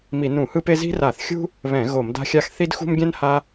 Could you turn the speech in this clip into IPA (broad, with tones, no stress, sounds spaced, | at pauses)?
m i˧˩˧ n ũ˧˩˧ h ɯ˥ p e˥ z i̤˥ r a˧˩˧ θ xʲ ṳ˥ | β ɛ̃˧˩˧ ɣ o˧˩˧ m d a̤˥ xʲ a˥ x θ i˥ d x ṳ˥ m ɡʲ ɛ̃˥ n h a˥